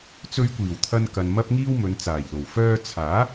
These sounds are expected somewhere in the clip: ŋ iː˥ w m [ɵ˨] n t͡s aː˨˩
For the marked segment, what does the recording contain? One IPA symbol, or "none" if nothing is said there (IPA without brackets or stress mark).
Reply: ɵ˨˧